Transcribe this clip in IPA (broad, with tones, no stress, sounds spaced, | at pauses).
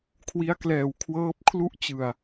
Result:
kʰ w i˦˥ a̯ k l ɛː˨˩ w kʰ w ɤː˦˥ p̚ kʰ l u˥˩ ʔ t͡ɕ ɯ˨˩ a̯